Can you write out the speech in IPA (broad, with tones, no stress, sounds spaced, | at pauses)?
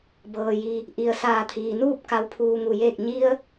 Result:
b ɤː˩ j i˩ | ʔ i˩ ə̯ s aː˧˩ t̪ʰ iː˩ n uː˥˨ p̚ k a˧ w pʰ uː˧ ŋ u˧˩ j eː˥˨ k̚ ɲ i˧ ə̯